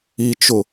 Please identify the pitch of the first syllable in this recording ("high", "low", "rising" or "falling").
low